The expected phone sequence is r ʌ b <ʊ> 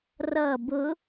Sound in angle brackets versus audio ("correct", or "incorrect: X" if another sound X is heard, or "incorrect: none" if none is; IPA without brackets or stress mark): correct